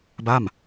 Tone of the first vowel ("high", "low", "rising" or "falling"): falling